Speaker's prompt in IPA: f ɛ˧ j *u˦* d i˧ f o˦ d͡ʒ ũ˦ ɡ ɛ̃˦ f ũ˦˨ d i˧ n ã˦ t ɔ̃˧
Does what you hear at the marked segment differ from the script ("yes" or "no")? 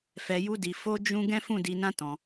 no